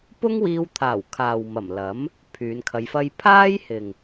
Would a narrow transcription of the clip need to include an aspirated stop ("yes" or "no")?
yes